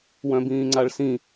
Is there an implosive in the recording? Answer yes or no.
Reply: no